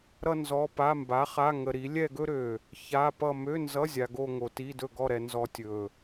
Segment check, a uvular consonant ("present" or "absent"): present